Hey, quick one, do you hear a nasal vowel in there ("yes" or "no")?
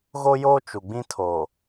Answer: yes